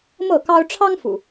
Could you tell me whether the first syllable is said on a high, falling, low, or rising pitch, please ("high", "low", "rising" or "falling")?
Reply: falling